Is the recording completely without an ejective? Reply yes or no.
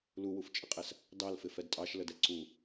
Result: no